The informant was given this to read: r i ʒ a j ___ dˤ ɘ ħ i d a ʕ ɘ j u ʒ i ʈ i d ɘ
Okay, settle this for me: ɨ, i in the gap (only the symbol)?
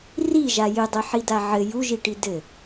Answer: ɨ